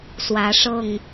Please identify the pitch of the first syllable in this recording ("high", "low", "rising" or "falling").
rising